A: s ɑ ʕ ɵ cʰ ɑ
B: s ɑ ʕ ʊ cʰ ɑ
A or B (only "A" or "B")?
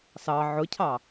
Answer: B